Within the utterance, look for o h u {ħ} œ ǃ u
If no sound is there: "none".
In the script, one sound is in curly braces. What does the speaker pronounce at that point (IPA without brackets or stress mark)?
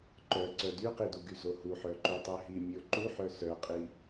ħ